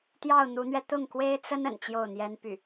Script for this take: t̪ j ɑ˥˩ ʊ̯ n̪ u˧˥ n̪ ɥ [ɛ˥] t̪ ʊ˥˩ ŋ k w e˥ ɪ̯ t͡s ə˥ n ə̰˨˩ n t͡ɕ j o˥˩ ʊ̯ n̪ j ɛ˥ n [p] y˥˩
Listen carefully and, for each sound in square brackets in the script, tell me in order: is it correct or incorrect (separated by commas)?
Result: incorrect, correct